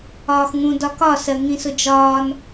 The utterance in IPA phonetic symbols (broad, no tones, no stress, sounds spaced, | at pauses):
ɒː x ŋ ũ d ɒ k ɒ s ɜ ŋ ĩ s ʊ d͡ʒ ɒː n